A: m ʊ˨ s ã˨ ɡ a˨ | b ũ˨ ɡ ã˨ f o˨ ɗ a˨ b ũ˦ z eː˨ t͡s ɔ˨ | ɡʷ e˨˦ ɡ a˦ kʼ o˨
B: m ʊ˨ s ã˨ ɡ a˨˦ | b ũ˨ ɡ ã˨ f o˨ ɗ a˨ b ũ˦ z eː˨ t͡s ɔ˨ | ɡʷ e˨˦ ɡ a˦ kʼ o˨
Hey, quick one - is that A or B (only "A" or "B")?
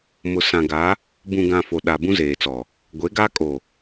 B